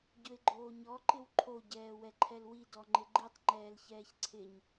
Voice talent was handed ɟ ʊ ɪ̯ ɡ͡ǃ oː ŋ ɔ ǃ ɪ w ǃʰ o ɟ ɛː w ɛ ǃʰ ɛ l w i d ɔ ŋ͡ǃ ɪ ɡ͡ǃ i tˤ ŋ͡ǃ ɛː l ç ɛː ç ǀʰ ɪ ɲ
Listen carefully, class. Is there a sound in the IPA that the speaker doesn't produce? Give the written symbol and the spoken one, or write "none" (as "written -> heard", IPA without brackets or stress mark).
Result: ŋ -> ɲ